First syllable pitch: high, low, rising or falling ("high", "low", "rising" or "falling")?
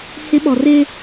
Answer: high